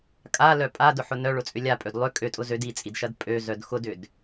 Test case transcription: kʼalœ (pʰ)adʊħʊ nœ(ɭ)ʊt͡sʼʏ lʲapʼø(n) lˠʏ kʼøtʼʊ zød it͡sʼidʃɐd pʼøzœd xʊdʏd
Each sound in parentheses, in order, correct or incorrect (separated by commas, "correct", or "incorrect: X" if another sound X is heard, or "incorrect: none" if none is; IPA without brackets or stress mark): incorrect: pʼ, correct, incorrect: d